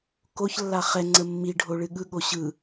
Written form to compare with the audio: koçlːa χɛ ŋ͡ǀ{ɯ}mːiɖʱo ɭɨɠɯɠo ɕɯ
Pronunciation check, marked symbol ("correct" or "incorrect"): incorrect